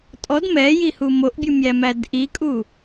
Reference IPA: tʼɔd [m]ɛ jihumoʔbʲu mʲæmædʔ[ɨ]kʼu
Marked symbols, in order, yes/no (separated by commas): yes, no